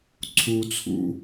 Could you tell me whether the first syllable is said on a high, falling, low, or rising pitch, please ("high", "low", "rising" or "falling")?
high